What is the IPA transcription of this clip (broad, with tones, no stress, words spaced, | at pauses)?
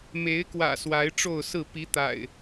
me˨˦ɪ̯kwä̰˨˩ swa˨˦ɪ̯ʈ͡ʂo˥˨ʊ̯sɹ̩˥˨ pi˨˦t̪a̰˨˩ɪ̯